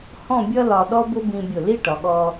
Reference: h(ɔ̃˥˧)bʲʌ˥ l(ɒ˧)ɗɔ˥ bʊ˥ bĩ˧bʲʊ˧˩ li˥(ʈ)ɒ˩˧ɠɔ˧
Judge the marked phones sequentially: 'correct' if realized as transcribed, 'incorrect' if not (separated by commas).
correct, correct, correct